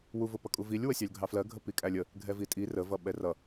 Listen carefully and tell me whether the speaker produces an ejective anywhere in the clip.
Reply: yes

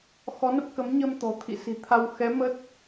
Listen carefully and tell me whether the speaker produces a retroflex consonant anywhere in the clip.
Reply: no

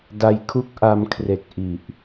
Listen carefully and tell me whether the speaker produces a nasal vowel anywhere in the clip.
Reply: no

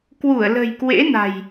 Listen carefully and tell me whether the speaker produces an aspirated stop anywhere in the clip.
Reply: no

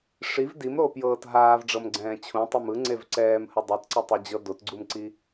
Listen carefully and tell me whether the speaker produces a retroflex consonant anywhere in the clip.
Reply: yes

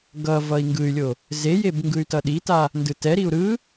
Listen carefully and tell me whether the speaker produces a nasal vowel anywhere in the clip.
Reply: no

